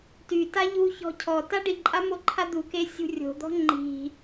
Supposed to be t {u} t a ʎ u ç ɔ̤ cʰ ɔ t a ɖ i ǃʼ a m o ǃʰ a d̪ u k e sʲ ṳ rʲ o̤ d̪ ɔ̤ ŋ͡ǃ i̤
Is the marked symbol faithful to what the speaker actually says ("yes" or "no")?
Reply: no